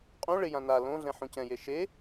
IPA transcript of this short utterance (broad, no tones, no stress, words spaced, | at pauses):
qʼũ ɭɪjã na lõ ɮɛ̃ħũcɛ̃je ʃe